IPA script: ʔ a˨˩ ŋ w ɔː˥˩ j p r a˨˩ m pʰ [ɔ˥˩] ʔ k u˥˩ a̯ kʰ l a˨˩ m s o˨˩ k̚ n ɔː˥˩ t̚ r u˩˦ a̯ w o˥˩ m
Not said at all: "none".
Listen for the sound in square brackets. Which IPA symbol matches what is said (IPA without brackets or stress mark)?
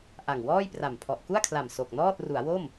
ɔ˨˩